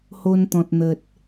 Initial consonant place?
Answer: glottal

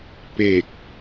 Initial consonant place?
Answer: labial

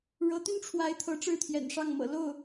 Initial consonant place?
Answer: retroflex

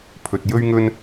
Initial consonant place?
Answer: labial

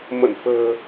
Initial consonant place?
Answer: labial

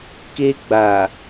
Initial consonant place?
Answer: velar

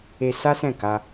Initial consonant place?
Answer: alveolar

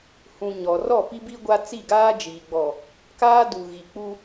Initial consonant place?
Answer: glottal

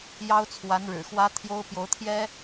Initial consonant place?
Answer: palatal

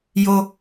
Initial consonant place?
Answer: palatal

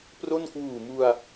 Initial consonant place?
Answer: labial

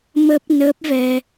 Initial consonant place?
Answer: labial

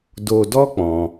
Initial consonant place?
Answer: alveolar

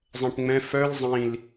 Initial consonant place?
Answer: alveolar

